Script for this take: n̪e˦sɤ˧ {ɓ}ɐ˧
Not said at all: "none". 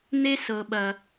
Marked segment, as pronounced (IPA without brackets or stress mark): ɓ